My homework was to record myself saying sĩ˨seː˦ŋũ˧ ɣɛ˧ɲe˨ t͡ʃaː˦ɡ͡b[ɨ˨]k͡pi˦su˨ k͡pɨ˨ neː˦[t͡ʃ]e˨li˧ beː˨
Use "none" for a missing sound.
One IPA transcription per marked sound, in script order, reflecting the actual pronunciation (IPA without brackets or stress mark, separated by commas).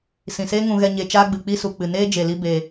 ɨ˨, d͡ʒ